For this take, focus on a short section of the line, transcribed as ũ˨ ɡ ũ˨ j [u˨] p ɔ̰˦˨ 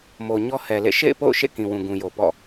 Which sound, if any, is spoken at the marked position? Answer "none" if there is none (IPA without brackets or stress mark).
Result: o˨